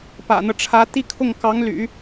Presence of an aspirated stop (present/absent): present